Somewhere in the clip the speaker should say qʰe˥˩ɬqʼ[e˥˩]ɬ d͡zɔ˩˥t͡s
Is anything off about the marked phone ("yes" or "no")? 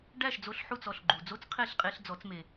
yes